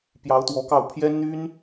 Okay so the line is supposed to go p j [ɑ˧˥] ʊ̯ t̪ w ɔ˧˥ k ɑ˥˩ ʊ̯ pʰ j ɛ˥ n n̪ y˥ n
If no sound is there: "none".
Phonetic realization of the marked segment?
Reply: ɑ˧˥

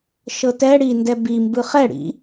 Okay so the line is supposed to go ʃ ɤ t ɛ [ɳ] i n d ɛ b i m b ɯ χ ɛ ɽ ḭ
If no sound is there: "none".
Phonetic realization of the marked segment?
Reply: ɽ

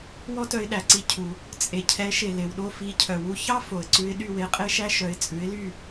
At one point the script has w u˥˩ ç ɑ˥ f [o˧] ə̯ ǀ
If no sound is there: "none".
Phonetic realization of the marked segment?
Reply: o˩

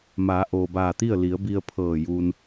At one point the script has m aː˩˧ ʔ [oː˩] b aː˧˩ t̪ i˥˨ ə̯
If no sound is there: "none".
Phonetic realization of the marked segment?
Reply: oː˩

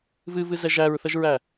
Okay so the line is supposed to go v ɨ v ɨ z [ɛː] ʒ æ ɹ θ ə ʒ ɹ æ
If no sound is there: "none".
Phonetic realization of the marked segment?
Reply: ɛ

